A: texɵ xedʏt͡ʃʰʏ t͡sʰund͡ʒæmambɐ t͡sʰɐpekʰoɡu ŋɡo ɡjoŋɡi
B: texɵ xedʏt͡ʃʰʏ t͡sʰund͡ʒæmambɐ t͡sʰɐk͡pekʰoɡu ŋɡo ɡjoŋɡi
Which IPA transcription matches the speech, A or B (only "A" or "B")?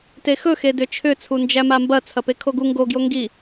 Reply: A